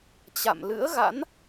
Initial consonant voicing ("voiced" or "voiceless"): voiceless